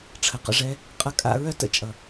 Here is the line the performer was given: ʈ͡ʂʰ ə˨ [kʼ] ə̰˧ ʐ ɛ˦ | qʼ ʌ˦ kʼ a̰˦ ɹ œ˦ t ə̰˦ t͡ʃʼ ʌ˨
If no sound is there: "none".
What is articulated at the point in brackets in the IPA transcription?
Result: q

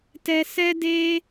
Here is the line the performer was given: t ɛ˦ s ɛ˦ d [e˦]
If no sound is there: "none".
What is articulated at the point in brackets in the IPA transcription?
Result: e˦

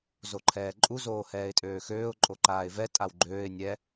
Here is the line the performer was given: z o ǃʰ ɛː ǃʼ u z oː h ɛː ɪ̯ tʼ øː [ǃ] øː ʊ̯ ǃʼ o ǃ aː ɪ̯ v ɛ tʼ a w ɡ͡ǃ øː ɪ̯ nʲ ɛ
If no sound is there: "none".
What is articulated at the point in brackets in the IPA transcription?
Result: x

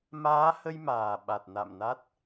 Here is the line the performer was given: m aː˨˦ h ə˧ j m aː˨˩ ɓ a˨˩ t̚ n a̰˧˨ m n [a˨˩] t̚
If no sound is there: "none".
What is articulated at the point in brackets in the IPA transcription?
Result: a˦˥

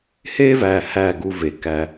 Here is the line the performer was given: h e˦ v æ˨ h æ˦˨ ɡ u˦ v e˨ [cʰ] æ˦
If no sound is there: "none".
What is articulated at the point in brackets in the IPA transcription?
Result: k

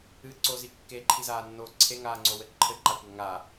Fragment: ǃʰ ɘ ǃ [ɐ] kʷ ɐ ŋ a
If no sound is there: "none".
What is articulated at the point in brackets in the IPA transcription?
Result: a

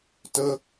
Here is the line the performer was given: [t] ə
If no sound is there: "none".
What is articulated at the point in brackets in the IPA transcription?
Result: t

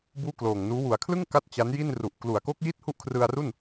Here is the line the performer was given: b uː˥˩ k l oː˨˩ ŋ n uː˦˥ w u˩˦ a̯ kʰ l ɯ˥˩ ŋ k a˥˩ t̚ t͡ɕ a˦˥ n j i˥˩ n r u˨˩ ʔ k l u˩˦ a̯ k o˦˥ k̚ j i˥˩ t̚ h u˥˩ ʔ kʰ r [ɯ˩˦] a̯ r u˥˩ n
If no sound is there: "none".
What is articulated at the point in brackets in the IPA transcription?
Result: ɯ˧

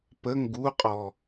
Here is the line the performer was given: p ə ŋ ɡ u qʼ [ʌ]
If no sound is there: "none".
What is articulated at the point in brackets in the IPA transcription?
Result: ɔ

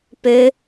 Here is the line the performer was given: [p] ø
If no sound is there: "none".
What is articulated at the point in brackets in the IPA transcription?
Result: p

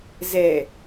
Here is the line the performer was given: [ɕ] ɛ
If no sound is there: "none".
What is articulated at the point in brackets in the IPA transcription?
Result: z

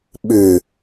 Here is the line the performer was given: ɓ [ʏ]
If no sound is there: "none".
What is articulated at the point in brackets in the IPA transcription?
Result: ʏ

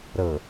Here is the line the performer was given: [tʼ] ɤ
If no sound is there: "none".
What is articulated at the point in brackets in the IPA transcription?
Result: ɾ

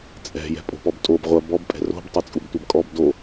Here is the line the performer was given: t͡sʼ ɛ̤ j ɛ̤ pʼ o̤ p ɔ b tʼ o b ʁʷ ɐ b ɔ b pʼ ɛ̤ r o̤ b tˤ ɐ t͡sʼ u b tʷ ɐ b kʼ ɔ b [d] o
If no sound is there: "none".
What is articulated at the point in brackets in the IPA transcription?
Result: d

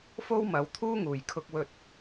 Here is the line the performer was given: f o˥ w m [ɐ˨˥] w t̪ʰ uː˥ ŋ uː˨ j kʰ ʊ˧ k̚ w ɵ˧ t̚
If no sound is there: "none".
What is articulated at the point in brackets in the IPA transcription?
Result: ɐ˨˥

